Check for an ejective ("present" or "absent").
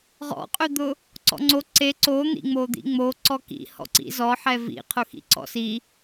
present